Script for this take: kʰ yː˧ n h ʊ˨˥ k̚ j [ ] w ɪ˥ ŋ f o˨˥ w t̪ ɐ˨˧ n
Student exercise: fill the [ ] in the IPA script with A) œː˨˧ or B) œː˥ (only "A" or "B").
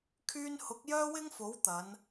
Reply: B